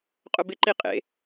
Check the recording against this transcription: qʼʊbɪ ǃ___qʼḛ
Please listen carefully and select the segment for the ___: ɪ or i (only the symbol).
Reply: i